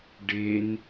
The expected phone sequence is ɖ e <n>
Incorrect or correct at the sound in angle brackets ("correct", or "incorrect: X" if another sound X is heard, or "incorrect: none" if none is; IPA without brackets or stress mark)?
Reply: correct